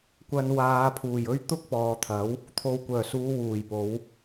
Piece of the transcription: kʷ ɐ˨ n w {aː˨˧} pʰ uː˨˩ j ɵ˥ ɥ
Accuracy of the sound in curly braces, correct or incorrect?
correct